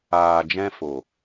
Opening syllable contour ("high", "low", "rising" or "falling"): low